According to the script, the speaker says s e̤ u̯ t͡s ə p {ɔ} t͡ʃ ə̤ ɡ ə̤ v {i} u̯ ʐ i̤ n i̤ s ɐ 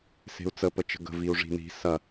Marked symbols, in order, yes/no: no, yes

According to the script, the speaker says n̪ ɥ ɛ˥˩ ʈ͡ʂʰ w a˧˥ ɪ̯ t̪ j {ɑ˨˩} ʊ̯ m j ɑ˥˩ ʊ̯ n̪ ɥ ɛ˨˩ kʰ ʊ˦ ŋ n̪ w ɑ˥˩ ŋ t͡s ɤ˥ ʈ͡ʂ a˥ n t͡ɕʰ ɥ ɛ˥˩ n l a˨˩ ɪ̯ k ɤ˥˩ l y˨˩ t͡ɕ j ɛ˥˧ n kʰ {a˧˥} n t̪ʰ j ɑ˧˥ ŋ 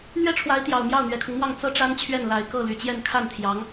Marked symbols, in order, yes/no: yes, no

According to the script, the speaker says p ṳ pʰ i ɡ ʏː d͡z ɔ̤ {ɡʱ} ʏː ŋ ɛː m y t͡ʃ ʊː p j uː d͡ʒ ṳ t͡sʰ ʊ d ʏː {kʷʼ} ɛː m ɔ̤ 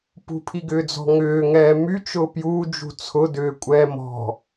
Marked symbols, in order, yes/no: no, yes

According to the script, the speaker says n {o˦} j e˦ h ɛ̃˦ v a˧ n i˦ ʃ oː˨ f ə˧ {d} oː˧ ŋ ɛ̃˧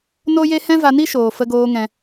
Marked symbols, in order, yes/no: yes, no

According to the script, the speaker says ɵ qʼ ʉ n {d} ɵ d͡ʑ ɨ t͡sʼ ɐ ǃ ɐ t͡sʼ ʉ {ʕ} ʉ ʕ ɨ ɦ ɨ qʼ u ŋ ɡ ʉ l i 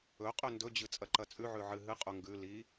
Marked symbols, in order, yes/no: yes, yes

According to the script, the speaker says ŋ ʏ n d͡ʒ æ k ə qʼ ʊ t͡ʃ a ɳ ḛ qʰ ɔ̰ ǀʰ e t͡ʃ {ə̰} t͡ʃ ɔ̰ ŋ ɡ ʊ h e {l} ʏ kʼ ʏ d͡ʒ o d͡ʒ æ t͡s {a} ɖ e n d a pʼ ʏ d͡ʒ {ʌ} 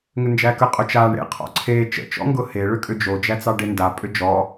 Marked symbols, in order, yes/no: yes, no, no, no

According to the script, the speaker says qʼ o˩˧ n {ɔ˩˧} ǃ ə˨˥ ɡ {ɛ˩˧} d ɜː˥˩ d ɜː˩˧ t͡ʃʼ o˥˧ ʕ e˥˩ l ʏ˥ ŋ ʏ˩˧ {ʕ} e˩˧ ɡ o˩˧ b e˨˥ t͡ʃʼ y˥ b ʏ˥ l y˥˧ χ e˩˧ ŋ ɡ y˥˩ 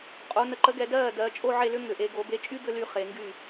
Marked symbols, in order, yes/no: no, yes, no

